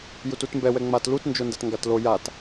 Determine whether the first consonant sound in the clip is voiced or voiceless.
voiced